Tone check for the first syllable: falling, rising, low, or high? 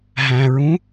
low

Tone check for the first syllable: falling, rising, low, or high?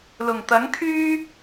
low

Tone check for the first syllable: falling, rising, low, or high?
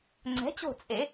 rising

